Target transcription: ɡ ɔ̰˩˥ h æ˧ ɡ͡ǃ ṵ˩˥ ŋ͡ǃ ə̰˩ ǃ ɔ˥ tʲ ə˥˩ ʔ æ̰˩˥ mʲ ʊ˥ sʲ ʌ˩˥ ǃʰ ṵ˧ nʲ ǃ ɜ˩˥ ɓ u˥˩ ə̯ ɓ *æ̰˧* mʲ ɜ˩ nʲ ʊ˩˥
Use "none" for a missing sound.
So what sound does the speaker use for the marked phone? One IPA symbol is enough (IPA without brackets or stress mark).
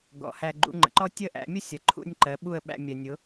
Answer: æ̰˧